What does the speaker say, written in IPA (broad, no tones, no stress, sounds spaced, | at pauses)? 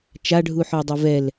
t͡ʃ a ɖʱ u ħ ɔ dˤ ɛ v ɛ l